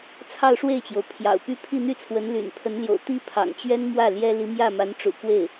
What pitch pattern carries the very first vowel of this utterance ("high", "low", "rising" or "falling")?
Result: falling